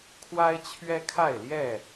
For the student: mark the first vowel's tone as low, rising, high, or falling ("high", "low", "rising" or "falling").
high